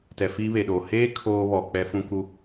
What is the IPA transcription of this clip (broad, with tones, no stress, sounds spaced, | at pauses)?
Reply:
t ɛ˨ f iː˦ β e˨ ɗ oː˨ h eː˦ kʰ oː˦ β ɔ˨ k͡p ɛ˦ f ũ˦ k u˦